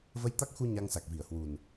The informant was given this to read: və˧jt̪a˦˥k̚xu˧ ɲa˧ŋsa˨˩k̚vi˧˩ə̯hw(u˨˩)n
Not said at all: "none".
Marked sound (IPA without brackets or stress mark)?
u˨˩